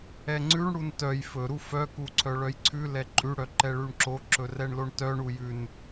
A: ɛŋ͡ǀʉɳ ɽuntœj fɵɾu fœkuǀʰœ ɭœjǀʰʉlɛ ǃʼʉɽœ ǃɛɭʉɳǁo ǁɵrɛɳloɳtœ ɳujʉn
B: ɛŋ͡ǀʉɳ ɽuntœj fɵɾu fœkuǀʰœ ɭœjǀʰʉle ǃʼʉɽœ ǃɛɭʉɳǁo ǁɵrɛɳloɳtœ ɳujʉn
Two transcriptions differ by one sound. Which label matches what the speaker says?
A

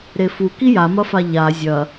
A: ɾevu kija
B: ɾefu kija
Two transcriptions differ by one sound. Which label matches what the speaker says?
B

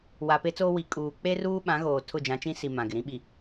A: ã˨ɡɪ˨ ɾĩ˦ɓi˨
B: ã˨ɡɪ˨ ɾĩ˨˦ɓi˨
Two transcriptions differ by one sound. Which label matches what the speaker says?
A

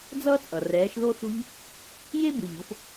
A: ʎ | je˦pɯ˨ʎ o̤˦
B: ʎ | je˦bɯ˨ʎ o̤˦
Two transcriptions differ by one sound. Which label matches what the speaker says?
B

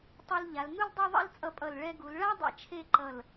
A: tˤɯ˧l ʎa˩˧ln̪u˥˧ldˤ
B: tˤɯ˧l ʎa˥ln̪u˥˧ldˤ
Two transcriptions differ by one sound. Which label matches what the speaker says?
A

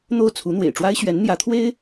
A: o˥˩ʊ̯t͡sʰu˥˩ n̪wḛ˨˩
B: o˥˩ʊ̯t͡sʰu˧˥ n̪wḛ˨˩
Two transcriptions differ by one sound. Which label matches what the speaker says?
B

